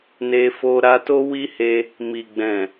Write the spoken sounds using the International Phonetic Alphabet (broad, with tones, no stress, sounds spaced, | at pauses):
n e˧ f o˧ ɾ a˧ t o˦ w i˦ h e˧ | m i˨ ɡ͡b ɛ̃˨